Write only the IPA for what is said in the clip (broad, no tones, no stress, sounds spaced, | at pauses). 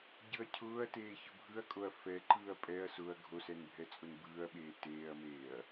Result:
ɟ ɯ ɐ̯ cʰ ʊː ɐ̯ t eː ç ʊ bʱ ɯ ɐ̯ kʼ o ɐ̯ f ɛ ǃ ɯː ɐ̯ pʼ ɛ ɐ̯ s ʊ ɐ̯ ɡʱ o s ɛ n bʱ ɛ t͡sʼ ʊ n b ɯː ɐ̯ ɓ eː t eː ɐ̯ m eː ɐ̯